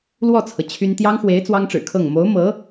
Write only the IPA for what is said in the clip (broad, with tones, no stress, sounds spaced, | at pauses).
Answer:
l w ɔ˥˩ t͡sʰ ɤ˩ t͡ɕʰ y˥ n t̪ j ɑ˥ ŋ x w e˧˥ ɪ̯ t͡s w ɑ˥ ŋ ʈ͡ʂ ɻ̩˨˩ kʰ ɤ˥˩ ŋ m o˧˥ ʊ̯ m ɤ˧˥